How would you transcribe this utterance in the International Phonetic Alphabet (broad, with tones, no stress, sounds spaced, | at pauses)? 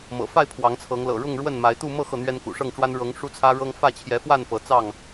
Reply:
m ɤ̰˨˩ f a˥˨ ɪ̯ pʰ w ɑ˨˦ ŋ t͡sʰ ɤ˨˦ ŋ l ɤ̰˨˩ ɻ ʊ˥˨ ŋ ɻ w ə˥˨ n m a˨˦ ɪ̯ t̪ u˥˨ m ɤ˥˨ x ɤ˥˨ n̪ ɥ ɛ˦ n k ṵ˨˩ ʂ ɤ˥˨ ŋ ʈ͡ʂ w a˦ n ɻ ɤ˨˦ ŋ ʂ u˦ t͡sʰ ä˦ ɻ ɤ˦ ŋ f ä˥˨ t͡ɕʰ j ɛ˨˦ f w a˥˨ n p ɤ˨˦ t͡s ɑ˥˨ ŋ